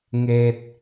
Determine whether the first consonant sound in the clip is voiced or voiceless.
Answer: voiced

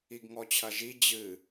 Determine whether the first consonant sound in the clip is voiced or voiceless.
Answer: voiced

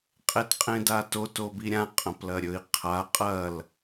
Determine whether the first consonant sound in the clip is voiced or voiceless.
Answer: voiceless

